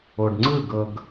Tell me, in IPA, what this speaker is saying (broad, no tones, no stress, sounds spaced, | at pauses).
o ɖ ŋ͡ǀ ɯ ɡ ɤ ɡ